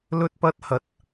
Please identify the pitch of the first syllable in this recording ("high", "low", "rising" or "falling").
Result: high